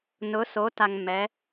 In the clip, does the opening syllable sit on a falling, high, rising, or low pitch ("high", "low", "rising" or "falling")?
rising